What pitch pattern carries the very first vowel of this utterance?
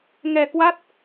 low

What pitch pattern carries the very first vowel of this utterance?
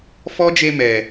high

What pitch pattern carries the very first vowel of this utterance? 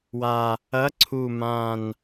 low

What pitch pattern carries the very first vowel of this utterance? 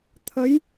rising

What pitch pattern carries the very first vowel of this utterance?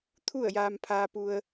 falling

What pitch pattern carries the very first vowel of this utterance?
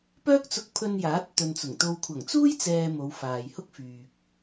high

